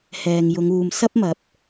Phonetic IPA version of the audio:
hɛː˨ŋjʊ˨˧ŋuː˨m sɐ˥p̚mɐ˨˥p̚

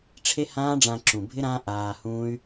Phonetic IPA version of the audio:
ʈ͡ʂʰe˦hãː˦ɖ͡ʐã˧ǁũ˨ bʱɪ˦ ɾã˦ʔaː˧hũː˦y̯

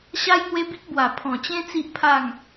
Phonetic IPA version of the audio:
ɕa˦jŋwe˦bi˦k̚ bwa˨˩ pʰɔ̃˨˩t͡ɕẽ˦ t͡si˦ʔpʰa˥˧ŋ

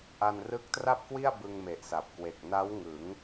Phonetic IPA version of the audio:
ʔa˧nrɯ˦˥k̚tra˥˩p̚kwi˥˩a̯ bɯ˧ŋme˨˩ʔsa˨˩p̚kwe˨˩k̚ na˦˥wŋɯ˩˦ŋ

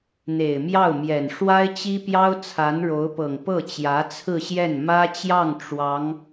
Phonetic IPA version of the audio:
n̪e˨˩ɪ̯mjɑ˥˩ʊ̯mjɛ˨˩n ʂwa˥ɪ̯t͡ɕi˥pjɑ˥ʊ̯ t͡sʰa˧˥nɻo˧˥ʊ̯pɤ˨˩ŋ pɤ˥˩t͡ɕjä˧˥t͡sʰɹ̩˥˧ɕjɛ˥˩n mä˥t͡ɕjɑ˥˩ŋ ʈ͡ʂwɑ˧˥ŋ

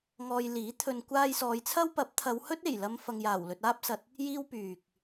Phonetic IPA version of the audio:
ŋɔː˧jliː˨˥ t̪ʰɵ˨nkʷaː˧j sɔː˨˧jt͡sʰɐ˥wpɐ˨˥p̚ t̪ʰɐ˨˧whɵ˥t̚e˨˩j lɐ˧m fɐ˨ŋjaː˨˩w lɵ˨t̚ aː˥p̚sɐ˨t̚ | jiː˥wpyː˨k̚

